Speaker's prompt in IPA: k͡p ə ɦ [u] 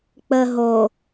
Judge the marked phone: incorrect: o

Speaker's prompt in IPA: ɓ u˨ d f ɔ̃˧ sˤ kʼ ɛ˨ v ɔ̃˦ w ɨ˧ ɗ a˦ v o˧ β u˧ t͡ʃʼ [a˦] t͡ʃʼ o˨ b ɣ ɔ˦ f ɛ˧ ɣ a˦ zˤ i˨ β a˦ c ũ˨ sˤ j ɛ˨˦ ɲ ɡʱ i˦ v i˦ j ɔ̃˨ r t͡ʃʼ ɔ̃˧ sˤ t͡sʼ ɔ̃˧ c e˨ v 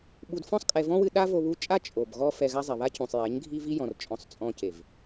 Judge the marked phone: correct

